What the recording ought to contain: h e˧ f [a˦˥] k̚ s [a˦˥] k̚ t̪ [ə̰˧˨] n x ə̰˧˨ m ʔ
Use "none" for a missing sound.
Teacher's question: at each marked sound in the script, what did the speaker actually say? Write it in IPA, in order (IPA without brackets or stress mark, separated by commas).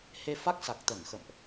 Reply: a˦˥, a˨˩, ə˧˩